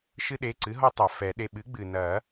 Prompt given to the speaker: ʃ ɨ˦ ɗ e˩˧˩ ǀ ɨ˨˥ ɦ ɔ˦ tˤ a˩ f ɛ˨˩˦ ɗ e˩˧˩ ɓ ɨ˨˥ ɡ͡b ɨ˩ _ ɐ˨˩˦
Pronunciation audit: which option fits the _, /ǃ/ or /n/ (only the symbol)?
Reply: n